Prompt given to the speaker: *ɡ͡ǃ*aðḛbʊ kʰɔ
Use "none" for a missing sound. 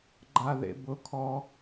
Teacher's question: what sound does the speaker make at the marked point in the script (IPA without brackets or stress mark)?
ɡ͡ǃ